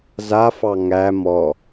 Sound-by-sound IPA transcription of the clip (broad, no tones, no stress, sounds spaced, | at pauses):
z a f ɑ ŋ æ m ɔ